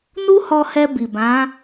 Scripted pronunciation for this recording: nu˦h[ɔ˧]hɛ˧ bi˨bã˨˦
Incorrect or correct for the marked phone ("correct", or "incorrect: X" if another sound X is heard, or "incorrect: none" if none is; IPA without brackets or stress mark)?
correct